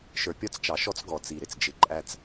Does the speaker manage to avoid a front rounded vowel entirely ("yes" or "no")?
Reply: yes